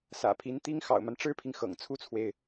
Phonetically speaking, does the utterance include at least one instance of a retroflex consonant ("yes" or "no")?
yes